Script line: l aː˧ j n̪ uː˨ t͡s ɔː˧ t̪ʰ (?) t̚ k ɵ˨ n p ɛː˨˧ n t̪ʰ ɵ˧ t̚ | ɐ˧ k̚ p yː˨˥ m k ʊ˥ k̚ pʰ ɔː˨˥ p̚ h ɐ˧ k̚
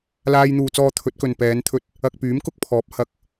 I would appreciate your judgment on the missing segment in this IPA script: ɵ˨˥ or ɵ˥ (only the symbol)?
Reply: ɵ˨˥